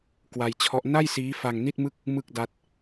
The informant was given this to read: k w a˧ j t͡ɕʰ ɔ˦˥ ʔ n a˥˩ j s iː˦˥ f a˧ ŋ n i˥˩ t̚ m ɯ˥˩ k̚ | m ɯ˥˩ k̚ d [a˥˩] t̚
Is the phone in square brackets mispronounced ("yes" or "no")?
yes